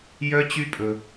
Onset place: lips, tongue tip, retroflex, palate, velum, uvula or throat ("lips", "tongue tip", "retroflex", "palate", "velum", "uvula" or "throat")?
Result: palate